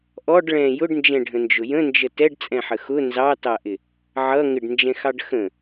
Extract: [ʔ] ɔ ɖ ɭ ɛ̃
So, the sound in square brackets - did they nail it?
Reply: yes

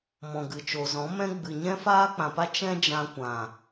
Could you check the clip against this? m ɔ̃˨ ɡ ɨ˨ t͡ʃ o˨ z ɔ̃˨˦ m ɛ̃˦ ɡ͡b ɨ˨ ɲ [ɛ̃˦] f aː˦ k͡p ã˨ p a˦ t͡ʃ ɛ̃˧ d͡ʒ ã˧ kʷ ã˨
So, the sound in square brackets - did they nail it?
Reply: yes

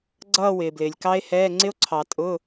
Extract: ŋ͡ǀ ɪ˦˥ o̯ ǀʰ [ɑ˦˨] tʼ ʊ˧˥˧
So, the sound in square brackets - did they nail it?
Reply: no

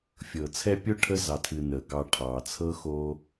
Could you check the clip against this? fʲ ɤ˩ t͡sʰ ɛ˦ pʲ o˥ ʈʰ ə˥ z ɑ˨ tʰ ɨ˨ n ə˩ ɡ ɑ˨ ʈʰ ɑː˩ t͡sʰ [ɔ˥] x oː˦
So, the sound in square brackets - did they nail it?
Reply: no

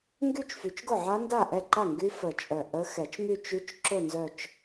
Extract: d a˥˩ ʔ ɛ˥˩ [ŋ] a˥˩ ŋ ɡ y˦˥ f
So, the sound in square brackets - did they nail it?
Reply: no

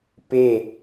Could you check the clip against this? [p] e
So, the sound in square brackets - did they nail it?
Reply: yes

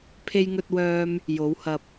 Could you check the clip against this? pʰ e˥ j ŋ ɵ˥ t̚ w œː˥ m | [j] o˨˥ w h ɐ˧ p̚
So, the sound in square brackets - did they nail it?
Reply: yes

